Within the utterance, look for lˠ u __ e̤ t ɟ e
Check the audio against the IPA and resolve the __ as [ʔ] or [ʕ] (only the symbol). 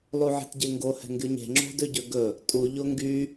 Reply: ʕ